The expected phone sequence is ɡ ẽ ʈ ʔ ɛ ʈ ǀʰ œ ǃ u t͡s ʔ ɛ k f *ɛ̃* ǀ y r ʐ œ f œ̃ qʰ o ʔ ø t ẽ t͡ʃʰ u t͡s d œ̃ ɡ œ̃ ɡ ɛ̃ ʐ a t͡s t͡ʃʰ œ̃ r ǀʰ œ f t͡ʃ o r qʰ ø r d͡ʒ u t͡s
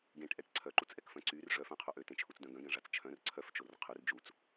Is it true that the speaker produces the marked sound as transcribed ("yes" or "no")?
no